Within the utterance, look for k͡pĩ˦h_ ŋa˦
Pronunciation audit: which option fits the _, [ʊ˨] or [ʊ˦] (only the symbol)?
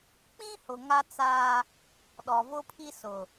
ʊ˨